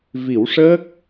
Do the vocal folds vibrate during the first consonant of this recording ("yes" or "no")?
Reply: yes